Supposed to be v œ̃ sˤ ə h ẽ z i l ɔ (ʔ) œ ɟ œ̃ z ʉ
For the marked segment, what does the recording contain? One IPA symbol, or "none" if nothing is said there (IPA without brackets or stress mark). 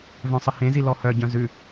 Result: h